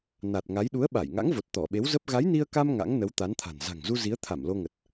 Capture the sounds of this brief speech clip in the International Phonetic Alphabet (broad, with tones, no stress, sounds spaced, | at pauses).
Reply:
n a˨˩ t̚ ŋ a˨˦ j ɗ u˨˦ ə̯ ɓ a˧˩ j ŋ a̰˧˥ ŋ v o˨˩ t̚ t̪ ɔ˧˩ ɓ e˨˦ w z ə˦˥ p̚ ɣ a˨˦ j n i˧ ə̯ k a˧ m ŋ a̰˧˥ ŋ n ə˨˦ w t̪ a˨˦ n t̪ʰ a̤˨˩ n z a̤˨˩ ŋ z u˧ z i˨˦ ə̯ t̪ʰ a˧˩ m l o˧ ŋ ə˨˩ t̚